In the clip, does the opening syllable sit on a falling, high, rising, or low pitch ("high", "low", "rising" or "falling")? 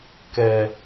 low